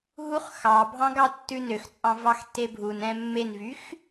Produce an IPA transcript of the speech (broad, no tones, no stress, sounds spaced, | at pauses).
ɦ u χ x ɑ bʱ ɑ̃ ɡ ɑ tː ʉ n ø x t͡sʼ ɑ̃ v ɑ x tː e bʱ u n ɛ̃ mː e n v y x